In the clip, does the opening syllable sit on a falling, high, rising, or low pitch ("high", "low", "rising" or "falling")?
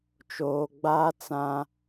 low